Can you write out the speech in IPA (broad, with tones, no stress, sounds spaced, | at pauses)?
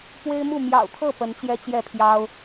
p w e˦ ɪ̯ m u˥˨ m j ɑ̰˨˩ ʊ̯ t̪ʰ ɤ˥˨ p ə˨˦ n t͡ɕ j ɛ˦ t͡ɕ j ɛ˥˨ pʰ j ɑ˦ ʊ̯